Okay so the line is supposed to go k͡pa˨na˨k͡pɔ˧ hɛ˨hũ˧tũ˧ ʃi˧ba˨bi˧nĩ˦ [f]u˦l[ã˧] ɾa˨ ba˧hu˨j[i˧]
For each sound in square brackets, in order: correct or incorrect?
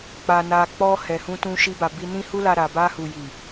incorrect: h, incorrect: a˧, incorrect: i˨

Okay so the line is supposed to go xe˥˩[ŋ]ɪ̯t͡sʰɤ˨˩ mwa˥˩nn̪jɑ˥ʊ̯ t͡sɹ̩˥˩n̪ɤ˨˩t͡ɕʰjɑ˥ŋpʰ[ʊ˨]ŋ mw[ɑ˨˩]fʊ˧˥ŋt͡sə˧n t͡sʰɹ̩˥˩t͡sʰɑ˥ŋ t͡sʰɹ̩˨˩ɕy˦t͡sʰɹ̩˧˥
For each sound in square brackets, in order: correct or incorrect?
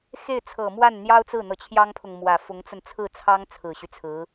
incorrect: none, correct, incorrect: ä˨˩

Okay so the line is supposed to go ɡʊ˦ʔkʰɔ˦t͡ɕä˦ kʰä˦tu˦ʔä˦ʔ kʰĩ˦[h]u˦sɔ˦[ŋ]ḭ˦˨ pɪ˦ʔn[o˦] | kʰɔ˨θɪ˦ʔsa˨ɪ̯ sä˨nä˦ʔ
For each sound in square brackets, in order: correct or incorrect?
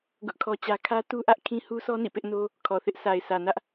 correct, incorrect: n, correct

